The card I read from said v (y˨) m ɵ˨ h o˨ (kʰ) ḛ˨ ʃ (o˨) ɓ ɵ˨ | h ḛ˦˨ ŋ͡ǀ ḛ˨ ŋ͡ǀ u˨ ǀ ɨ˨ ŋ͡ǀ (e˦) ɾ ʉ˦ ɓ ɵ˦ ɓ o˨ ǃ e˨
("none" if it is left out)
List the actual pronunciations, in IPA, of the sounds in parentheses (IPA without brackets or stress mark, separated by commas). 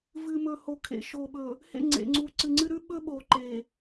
ɨ˨, kʰ, o˨, ɨ˦